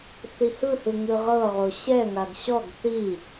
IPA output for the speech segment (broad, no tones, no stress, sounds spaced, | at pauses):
θ i h ɯ h ɯ ŋ ɯ ʁ ɤ ʁ o ɕ ɛ ŋ a ɡ ɕ ɔ ɡ θ i